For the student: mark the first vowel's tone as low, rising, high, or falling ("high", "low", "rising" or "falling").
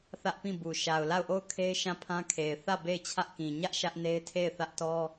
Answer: high